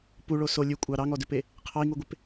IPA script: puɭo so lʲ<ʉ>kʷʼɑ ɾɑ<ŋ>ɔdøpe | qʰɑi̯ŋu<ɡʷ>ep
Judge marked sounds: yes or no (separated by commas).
yes, yes, yes